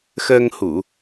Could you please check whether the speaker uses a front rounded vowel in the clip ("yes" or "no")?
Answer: no